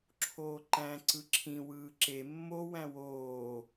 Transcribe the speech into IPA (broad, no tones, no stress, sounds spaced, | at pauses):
ǁʰ oː ǃ æ̃ ǀ ɯ ǁʰ ĩ w ɯː ǁ e mː o w æ̃ w oː